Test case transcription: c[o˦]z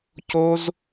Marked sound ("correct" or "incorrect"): correct